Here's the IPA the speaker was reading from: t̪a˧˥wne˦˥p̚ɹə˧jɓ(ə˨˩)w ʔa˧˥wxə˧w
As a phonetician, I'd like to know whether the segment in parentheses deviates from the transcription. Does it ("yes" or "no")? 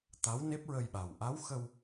yes